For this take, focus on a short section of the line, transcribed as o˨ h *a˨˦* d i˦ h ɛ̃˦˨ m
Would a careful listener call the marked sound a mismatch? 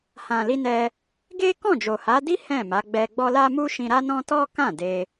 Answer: no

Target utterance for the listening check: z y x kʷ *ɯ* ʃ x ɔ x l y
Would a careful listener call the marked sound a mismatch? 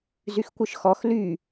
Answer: no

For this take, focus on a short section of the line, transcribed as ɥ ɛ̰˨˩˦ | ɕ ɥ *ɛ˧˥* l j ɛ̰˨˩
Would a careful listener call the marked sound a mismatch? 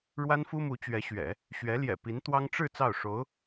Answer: no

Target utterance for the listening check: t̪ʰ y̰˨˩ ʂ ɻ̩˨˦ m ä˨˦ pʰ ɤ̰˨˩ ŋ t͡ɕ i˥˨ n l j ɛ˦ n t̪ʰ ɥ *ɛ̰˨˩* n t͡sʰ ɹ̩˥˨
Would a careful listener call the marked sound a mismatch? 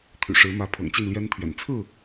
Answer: no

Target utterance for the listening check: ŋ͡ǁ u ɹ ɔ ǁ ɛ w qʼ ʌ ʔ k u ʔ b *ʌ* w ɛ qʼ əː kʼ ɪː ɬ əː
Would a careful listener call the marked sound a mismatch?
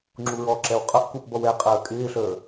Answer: no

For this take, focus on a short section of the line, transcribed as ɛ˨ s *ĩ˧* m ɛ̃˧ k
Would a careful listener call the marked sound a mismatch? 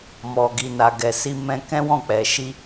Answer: yes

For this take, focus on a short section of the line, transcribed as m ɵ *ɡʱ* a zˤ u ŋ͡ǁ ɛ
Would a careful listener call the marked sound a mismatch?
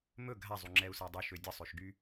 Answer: no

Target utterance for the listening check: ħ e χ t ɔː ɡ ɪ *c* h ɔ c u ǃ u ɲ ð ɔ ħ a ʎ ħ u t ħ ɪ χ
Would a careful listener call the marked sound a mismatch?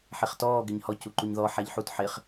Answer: yes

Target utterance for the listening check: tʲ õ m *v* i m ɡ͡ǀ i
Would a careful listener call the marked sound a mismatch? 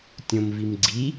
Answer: no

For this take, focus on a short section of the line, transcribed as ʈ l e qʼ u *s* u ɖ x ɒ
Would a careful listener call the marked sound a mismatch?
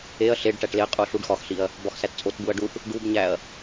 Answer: yes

